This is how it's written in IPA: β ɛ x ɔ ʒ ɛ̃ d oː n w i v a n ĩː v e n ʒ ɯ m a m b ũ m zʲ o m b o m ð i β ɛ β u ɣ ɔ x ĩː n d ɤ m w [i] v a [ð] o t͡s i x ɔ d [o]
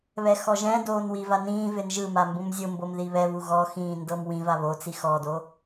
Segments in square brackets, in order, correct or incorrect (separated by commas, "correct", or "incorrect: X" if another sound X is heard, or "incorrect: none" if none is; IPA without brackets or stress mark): incorrect: ĩ, incorrect: β, correct